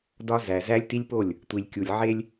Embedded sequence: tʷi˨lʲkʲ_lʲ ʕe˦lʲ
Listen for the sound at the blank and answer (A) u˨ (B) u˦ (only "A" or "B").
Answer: A